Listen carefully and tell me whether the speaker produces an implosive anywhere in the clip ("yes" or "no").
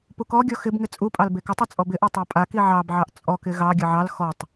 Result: no